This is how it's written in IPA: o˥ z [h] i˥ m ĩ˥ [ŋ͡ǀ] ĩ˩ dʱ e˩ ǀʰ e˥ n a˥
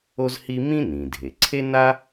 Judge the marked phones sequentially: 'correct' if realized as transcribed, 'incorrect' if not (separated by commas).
correct, incorrect